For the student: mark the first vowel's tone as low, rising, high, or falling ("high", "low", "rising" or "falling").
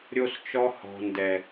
high